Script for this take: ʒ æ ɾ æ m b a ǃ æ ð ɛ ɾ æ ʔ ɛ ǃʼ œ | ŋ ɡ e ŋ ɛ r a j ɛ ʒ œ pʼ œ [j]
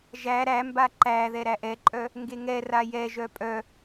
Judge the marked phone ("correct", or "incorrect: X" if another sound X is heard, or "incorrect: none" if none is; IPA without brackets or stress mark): incorrect: none